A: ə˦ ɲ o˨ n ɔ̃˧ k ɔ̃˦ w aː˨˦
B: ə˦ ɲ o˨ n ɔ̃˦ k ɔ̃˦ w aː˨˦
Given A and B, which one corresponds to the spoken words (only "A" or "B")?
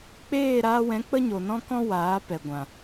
B